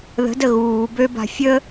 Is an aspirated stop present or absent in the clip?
absent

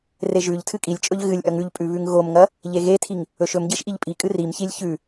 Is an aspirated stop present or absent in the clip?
present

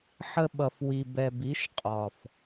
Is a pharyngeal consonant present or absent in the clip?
present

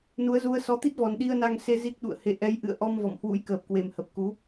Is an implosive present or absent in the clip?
present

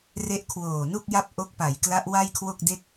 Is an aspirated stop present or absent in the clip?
present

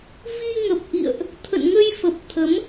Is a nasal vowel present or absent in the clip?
absent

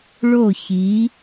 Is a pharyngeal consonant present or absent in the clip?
absent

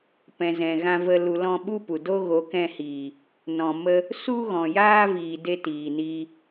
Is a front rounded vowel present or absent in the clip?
absent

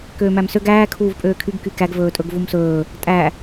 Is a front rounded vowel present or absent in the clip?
present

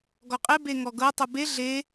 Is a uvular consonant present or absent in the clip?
present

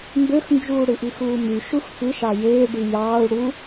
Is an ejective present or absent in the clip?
absent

